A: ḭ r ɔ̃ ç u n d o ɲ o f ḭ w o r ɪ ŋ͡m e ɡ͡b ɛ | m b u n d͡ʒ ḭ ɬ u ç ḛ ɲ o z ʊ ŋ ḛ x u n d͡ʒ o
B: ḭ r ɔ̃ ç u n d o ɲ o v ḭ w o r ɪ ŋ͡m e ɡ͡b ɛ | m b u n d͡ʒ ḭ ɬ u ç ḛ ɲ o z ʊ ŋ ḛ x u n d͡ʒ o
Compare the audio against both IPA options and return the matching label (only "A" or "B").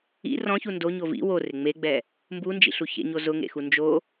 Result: B